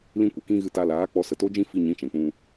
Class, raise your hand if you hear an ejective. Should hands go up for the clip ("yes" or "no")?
no